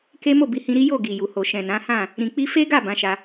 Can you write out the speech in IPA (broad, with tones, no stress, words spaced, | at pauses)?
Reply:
ke˦ mo˦˨bi˨˦hĩ˧ɾi˦ jo˦˨ ɡi˨ju˨ho˨ ʃɛ̃˨nã˨˦hã˦˨ | ɾĩ˧k͡pi˦ fe˦ɡa˦˨ bã˨˦ʃa˧